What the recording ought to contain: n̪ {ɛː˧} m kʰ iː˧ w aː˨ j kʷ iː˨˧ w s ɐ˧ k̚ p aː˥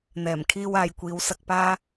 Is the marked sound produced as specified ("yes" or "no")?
no